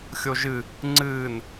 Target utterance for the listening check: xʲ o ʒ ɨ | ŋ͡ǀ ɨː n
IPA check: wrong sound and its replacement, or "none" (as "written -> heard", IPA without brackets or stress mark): none